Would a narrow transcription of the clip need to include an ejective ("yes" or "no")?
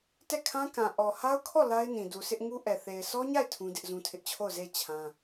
no